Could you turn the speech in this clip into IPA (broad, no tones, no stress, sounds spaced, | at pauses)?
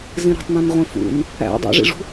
z ĩ ɾ o̤ tˤ n ũ n ʁʷ ĩ f ṵ n | æ̰ dˤ o̰ ʐ ḭ ʐ ṳ